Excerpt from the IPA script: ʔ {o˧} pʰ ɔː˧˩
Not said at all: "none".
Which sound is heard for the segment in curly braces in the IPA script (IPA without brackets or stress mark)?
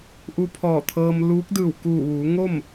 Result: u˧